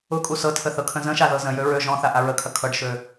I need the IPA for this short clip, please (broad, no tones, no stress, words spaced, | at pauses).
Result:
ʊkʼu sɤtʰə θɤkʰə̃zə̃ʃa ðɤzə̃jø ɹø ʒɔ̃θa ʔaɹəkʰɐ kʰɤɖʃø